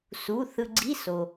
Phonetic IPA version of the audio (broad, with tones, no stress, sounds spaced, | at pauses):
s u˩˧˩ θ ɯ˧ ɡ͡ǀ i˧˥˧ s o˩